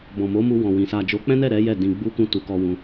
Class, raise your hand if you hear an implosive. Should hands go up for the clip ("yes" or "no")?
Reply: no